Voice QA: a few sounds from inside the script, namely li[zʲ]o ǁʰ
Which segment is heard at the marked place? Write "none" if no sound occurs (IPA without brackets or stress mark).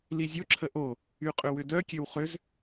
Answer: zʲ